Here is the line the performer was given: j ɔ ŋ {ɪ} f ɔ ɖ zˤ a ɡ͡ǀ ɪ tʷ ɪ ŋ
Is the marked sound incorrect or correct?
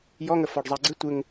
incorrect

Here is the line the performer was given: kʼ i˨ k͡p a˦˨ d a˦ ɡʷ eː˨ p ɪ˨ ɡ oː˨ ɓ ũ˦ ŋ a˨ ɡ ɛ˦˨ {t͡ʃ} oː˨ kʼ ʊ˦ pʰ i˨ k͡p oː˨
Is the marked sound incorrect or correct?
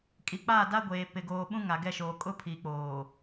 incorrect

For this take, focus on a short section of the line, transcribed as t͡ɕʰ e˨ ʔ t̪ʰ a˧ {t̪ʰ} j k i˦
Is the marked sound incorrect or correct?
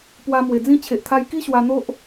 incorrect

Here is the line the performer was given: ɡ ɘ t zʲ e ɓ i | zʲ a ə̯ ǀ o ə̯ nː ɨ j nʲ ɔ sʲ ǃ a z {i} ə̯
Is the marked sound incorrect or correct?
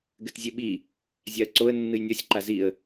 correct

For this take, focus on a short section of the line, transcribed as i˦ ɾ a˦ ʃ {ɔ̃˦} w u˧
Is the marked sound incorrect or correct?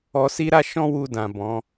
correct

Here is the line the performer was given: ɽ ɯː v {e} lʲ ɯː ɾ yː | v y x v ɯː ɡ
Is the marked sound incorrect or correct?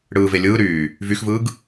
correct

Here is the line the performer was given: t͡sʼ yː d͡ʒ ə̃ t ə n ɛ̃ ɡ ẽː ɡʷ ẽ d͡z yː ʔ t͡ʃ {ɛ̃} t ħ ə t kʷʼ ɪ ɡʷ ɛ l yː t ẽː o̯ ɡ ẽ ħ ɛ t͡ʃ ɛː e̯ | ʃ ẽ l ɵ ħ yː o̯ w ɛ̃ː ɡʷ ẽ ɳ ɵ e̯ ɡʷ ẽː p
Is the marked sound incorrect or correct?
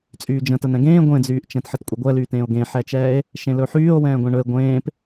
correct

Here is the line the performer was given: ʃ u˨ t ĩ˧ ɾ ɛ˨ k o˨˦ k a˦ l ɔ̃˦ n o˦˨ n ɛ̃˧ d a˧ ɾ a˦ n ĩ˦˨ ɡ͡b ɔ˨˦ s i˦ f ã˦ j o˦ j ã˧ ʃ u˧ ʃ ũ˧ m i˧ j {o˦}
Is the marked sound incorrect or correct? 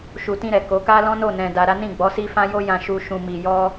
incorrect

